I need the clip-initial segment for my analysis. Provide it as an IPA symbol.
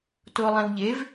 t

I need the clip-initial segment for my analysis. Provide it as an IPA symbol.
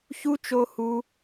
ç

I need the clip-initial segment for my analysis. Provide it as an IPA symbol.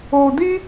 o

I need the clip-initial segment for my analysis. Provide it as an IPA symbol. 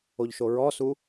o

